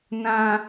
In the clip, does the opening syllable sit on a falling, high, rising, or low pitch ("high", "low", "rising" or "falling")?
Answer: high